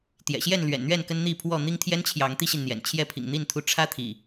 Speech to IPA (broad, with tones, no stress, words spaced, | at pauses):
t̪jɛ̰˨˩ɕjɛ˥˨nlɥɛ̰˨˩nn̪ɥɛ˥˨n kə˦nn̪i˥˨pʰwɔ˥˨ n̪i˦ŋt̪ʰjɛ˦nt͡ɕʰjɑ˨˦ŋ t̪i˦ɕi˨n n̪jɛ̰˨˩n t͡ɕʰjɛ˥˨pʰḭ˨˩ŋn̪i˥˨n t̪ʰu˦ ʈ͡ʂʰä˦t̪ʰḭ˨˩